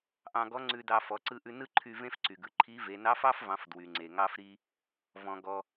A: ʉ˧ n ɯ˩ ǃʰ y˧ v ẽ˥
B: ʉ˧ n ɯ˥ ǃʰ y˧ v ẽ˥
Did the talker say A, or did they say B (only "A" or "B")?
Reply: B